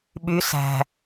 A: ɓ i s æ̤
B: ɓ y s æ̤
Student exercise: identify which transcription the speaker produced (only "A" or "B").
B